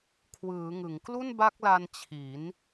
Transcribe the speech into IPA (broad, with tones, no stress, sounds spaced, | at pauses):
kʰ w ɯː˩˦ ŋ ɯ˩˦ ŋ k l u˥˩ n b a˦˥ k̚ l a˧ n t͡ɕʰ i˩˦ n